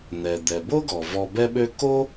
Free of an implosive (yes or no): no